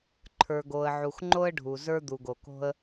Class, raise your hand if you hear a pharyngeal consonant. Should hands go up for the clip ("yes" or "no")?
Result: yes